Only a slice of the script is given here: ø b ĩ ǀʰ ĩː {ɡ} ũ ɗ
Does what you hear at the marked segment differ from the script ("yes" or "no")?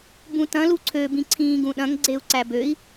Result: no